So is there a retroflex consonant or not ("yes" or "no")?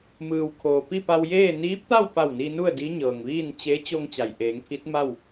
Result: no